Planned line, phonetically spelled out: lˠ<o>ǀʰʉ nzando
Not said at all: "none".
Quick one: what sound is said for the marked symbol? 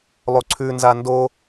o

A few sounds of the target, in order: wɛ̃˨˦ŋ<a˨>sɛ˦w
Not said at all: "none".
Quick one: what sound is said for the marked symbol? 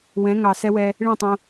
ɑ˨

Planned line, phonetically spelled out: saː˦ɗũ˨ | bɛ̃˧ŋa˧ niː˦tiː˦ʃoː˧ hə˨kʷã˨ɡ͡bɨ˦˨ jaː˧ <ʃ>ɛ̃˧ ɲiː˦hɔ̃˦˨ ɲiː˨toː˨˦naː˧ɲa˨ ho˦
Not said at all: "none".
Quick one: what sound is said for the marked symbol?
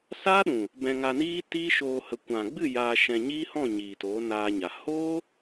ʃ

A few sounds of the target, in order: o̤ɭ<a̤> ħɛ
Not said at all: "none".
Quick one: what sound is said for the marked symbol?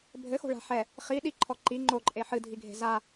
a̤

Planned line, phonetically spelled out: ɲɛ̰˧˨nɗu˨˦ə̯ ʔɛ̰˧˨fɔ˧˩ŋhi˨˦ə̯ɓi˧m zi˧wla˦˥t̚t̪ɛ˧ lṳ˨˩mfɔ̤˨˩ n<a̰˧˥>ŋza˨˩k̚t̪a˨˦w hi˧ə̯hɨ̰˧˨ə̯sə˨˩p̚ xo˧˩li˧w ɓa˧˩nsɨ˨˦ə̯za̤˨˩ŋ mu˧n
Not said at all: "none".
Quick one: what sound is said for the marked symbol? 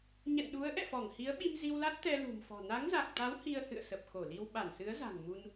a˨˦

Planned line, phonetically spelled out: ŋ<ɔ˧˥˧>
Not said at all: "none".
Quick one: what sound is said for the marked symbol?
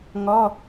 ɔ˧˥˧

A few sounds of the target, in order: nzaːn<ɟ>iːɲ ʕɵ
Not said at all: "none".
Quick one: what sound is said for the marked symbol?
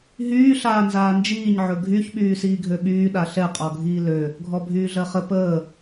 d͡ʒ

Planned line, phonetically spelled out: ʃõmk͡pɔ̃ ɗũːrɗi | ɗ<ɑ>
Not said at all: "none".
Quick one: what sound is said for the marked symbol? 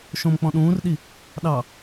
ɑ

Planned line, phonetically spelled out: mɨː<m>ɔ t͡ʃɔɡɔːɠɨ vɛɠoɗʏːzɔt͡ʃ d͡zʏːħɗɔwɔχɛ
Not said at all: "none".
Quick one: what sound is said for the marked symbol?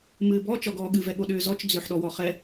b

